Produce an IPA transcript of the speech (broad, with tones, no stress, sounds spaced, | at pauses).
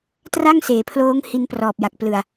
t r a˥˩ ŋ s eː˩˦ pʰ l oː˦˥ ŋ h i˧ n p r ɔː˨˩ p̚ j a˨˩ k̚ p l ɯ˨˩ a̯